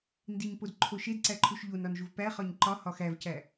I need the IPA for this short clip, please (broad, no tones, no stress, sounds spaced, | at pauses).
n d i ɲ p o d ǃʰ o ʃ e d ǀ æ ǃʰ u ʃ ʎ o n ɒ n ʒ u v p æ χ ɒ ɲ ǃ ɒ h ɒ x æ v c æ